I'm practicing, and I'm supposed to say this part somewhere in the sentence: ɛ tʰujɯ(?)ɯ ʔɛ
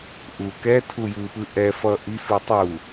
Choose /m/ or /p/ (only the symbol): p